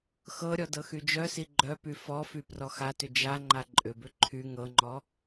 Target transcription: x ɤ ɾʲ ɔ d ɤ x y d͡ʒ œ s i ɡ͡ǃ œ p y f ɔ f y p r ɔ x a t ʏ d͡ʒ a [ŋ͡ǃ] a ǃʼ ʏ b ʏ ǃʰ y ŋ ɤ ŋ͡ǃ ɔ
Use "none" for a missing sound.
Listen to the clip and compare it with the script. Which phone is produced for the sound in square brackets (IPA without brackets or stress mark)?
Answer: ŋ͡ǃ